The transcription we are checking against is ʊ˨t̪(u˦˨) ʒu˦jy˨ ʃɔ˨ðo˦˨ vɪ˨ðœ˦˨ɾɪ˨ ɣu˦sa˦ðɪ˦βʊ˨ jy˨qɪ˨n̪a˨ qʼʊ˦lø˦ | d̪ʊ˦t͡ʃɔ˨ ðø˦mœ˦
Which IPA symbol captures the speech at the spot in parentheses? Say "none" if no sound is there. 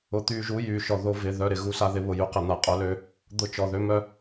y˦˨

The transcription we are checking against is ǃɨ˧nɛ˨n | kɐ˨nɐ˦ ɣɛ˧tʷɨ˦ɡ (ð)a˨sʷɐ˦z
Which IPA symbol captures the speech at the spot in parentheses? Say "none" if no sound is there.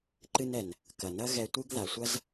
ð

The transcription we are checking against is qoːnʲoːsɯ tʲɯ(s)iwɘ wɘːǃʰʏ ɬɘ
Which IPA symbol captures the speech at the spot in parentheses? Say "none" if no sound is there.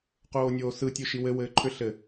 ʃ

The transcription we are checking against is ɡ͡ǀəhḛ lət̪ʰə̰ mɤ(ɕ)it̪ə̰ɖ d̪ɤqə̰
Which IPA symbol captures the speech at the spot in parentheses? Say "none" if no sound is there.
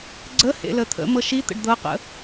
ʃ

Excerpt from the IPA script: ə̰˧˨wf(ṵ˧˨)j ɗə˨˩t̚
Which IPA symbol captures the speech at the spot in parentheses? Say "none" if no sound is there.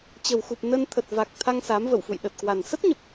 ṵ˧˨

